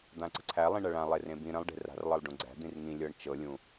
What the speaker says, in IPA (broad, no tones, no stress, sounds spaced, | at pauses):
d̪ ã ǀ ə̤ ǀʰ æ lˠ ĩ ɳ ɐ ɭ ã lˠ e r ẽ b ĩ ɾ ə̃ lˠ ɖ e̤ r a̤ r lˠ ɤ lˠ ɖ ũ ɡ͡ǀ æ̤ d̪ ĩ r ŋ ĩ lʲ ɤ ɳ t͡ʃ ɤ lʲ ũ